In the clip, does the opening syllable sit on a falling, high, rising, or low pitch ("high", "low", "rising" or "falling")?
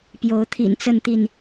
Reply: rising